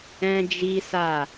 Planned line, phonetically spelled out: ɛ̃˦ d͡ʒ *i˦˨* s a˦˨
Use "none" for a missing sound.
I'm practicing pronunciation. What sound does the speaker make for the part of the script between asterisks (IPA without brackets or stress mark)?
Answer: i˦